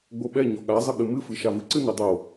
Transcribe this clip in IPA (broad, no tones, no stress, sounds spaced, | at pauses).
ɡ͡b o ɓ ɛ ɲ ɔ ɠ a zˤ ə ɠ ɨ m ɨ f ɨ ʃ a v ɨ ǀ ɨ n ɨ dˤ o